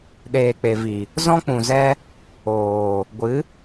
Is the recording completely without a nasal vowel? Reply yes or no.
no